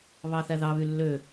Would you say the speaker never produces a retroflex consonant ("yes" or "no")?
yes